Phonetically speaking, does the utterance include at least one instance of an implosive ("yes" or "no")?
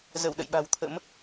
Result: yes